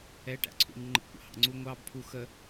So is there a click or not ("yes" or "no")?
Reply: yes